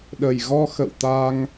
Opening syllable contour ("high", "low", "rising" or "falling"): low